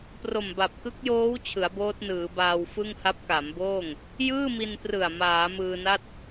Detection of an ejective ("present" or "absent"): absent